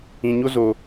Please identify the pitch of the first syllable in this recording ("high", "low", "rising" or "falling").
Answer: low